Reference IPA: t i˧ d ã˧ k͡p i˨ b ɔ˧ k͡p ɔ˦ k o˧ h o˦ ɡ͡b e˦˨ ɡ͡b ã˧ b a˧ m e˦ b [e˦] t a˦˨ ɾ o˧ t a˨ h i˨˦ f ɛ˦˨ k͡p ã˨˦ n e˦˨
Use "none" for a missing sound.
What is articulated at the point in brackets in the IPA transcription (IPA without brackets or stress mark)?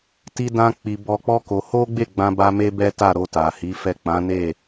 ɛ˦